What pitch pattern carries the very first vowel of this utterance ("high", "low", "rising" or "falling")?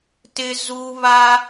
high